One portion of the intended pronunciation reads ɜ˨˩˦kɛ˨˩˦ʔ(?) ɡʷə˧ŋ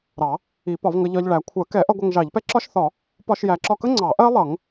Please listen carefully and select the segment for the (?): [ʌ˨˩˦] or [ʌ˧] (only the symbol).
ʌ˧